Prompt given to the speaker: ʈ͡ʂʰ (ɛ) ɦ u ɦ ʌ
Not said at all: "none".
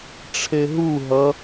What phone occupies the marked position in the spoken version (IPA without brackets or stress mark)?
e